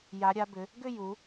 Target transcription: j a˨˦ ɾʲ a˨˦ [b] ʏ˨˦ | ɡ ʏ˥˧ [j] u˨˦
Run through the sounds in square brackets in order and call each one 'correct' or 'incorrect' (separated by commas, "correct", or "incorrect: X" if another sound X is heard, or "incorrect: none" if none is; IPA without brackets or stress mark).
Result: correct, correct